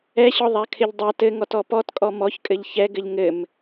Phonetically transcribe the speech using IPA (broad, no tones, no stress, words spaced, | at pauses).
ɛɕɔðˤakʰɪʎ dˤa tɘŋɔtɔ pɔtkʼɔ mɔçkʼɘʎ çɛɡɘʎ ŋɘm